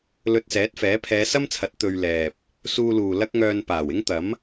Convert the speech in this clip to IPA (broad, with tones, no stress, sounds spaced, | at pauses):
l ɵ˧ t̚ s ɛː˨˥ t̚ f ɛː˨˥ pʰ ɛː˨˧ s ɐ˥ m t͡sʰ ɐ˨˥ t̚ t̪ ɵ˧ ɥ l ɛː˨ p̚ | s uː˧ l uː˨ l ɐ˥ k̚ ŋ œː˧ n p aː˨˩ w ɪ˥ ŋ t̪ ɐ˨˥ m